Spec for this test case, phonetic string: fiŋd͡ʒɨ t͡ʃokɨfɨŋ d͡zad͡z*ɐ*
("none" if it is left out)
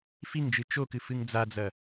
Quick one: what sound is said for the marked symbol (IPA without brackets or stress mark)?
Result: ɐ